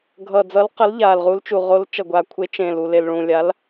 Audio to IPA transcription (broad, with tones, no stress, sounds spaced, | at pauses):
ɡʱ ʌ˨˩ d͡z ʌ˨˥ l q ʌ˨˥ l ʎ a˨˩ l ʁ u˨˥ l t͡ʃ u˨˩ ʁ o˨˥ l t͡ʃ ʌ˨˩ ɡʷ a˨˩ kʷʰ e˨˥ t͡ʃ ẽ˨˩ l u˨˩ l e˨˩ l ɭ ũ˨˩ lʲ a˨˥ l